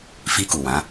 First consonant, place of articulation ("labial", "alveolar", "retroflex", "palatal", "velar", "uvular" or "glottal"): labial